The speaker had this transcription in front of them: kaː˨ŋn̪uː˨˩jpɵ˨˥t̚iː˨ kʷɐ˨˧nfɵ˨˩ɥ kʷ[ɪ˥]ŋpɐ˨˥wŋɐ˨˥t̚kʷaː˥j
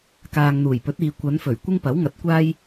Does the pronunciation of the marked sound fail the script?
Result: no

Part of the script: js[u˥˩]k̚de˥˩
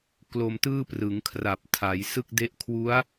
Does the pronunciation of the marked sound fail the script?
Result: yes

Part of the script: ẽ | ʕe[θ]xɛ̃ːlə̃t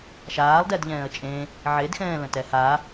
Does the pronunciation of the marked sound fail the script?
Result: yes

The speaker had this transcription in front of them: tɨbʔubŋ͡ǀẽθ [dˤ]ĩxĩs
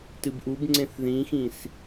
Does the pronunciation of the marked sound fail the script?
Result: yes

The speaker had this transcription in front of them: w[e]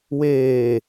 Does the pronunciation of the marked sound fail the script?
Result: yes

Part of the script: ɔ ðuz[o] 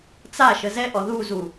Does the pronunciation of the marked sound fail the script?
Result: yes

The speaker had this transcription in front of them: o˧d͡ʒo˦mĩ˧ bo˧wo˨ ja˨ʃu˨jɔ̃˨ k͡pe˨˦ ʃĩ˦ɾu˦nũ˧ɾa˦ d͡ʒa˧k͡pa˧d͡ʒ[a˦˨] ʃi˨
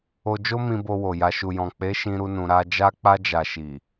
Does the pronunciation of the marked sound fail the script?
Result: yes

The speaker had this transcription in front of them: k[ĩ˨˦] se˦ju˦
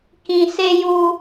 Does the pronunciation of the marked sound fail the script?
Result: yes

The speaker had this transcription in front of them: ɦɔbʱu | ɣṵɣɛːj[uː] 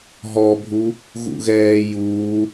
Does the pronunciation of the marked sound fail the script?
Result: no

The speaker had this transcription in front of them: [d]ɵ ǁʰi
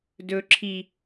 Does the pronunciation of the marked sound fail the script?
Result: no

